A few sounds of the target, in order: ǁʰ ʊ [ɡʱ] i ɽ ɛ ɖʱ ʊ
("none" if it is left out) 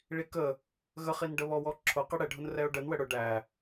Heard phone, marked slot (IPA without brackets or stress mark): q